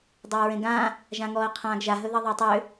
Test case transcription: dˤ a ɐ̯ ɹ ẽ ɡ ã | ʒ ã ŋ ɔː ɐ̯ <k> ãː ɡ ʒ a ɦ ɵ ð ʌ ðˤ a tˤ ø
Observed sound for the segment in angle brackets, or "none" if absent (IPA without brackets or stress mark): qʰ